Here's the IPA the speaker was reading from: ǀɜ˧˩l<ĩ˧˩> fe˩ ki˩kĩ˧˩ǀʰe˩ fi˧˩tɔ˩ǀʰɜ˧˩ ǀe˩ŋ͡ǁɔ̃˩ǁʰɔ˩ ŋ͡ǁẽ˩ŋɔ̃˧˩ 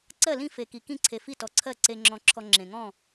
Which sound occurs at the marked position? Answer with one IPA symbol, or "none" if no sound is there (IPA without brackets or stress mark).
ĩ˧˩